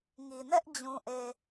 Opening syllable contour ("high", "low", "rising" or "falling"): low